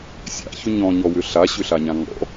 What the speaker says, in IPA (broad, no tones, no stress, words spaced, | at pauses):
sʲa̰çʏ ɲɔ̃ɲɔwʏ ɬaɕʏɬaɲã ŋɔ̰